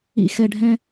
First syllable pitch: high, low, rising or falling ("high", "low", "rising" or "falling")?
low